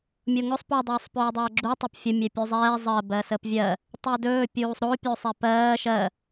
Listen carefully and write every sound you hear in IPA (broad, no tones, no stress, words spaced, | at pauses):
mʲoŋʊsˤ po dˤɵːsˤpɵːdˤɜːɡ͡ǁu tˤɛpfʲʊ mʲɛpʲuzˤɛː zˤɜ bɜsəpvʲɜ | tˤedɵː pʲuːsˤɾo pʲosˤɛpɜː ʃɜ